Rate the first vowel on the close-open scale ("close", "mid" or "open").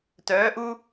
mid